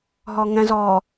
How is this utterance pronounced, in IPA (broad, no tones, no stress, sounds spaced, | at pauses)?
ɦ ɔ ŋ ɛ̃ z ɔ